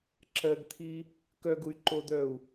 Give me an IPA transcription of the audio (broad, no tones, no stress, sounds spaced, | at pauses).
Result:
ǁ ɜ ɡ t̪ʰ i | k œ ɡ u y̯ ǃ o d̪ œ u̯